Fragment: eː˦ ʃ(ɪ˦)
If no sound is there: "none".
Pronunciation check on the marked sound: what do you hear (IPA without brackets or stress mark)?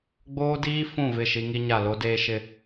ɪ˦